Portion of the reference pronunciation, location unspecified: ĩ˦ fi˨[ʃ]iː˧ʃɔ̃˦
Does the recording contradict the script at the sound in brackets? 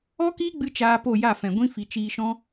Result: yes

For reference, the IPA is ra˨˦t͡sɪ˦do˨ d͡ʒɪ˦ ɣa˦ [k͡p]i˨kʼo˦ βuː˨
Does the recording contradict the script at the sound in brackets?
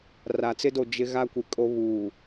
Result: yes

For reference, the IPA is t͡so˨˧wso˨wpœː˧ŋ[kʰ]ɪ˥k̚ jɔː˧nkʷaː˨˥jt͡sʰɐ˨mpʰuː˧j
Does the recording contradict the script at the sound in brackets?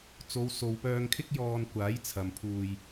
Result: no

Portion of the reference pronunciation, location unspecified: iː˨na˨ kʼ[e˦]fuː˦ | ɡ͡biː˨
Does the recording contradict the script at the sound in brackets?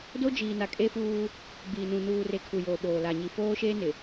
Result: no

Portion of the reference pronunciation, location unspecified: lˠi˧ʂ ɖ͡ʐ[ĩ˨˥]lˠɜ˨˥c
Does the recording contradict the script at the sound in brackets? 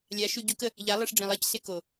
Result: yes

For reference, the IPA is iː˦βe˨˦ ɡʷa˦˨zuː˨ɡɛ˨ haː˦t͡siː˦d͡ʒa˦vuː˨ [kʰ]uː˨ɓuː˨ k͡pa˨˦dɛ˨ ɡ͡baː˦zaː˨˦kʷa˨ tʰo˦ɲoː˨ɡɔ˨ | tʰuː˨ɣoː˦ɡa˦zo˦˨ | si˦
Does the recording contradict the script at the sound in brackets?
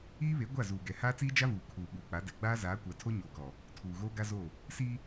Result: no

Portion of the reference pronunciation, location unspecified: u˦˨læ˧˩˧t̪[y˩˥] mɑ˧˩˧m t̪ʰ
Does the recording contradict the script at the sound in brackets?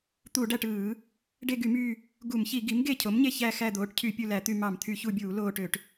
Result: yes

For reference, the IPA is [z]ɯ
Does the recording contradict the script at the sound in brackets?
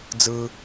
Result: yes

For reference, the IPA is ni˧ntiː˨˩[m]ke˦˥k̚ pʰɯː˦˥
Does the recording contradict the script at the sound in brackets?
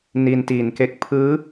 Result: yes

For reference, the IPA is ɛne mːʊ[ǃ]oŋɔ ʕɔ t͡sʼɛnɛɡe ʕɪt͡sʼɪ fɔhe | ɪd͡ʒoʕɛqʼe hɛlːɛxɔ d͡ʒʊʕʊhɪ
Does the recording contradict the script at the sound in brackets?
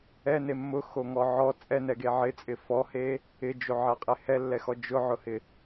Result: yes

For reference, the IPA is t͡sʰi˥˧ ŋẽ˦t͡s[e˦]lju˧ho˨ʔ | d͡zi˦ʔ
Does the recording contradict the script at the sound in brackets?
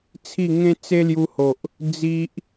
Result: no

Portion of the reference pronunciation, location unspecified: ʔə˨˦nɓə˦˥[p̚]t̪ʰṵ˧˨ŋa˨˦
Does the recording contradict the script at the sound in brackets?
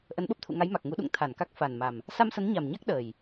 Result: no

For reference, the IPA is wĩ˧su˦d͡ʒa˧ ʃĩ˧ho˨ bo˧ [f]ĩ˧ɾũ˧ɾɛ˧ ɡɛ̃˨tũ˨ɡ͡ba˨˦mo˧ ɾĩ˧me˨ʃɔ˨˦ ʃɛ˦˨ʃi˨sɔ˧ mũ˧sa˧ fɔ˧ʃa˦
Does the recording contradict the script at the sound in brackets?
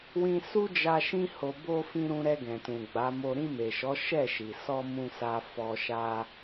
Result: no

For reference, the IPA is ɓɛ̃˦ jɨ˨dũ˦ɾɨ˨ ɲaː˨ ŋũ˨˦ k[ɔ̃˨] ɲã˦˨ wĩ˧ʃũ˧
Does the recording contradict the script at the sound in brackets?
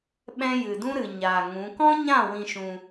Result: yes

